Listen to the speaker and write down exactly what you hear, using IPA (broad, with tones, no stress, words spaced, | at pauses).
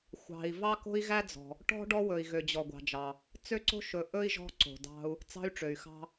xʷɑ̤˨i̯ vɑ˦ko̤˦i̯ɣæ˦d͡zɔ̤˨ | ʈɔ̤˦ ɖɔ˦wɵ˨i̯ ɣø˨d͡ʑɔ˨ɡʷɑ̤˨d͡ʒɑ˨ | t͡sø˦ǀo̤˦ʃɵ˨ ʔɵ˦i̯ ʒɔ̤˦ǀo̤˨dɑ̤˦u̯ | t͡sɑ̤˦y̯ʈ͡ʂø˨y̯xɑ̤˦